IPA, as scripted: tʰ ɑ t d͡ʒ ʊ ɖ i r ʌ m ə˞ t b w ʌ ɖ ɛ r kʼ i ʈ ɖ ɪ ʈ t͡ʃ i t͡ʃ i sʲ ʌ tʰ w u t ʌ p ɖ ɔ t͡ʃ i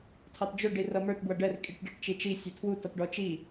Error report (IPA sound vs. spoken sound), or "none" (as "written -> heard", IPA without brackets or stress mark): none